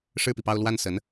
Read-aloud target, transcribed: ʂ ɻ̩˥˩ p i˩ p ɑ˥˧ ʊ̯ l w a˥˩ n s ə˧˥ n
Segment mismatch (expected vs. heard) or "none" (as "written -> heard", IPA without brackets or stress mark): none